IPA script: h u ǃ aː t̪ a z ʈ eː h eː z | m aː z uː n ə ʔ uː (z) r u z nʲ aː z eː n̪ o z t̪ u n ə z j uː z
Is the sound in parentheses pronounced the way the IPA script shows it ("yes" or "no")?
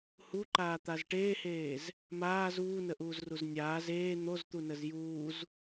yes